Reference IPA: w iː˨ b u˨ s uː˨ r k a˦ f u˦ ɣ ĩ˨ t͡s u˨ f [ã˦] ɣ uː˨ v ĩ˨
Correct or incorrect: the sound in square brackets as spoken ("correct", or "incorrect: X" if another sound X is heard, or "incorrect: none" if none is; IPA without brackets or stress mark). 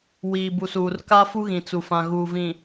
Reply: incorrect: ã˨